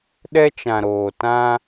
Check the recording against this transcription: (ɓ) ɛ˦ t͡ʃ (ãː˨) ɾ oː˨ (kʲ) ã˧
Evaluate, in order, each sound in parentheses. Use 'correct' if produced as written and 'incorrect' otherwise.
incorrect, incorrect, incorrect

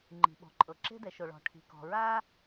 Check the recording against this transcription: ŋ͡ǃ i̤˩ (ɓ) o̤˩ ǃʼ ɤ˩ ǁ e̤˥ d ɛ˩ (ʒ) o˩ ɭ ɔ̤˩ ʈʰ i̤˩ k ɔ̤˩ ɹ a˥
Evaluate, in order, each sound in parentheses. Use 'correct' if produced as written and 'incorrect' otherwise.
correct, incorrect

